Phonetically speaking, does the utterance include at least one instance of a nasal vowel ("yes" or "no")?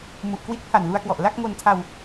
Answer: no